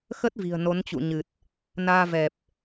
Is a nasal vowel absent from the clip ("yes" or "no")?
yes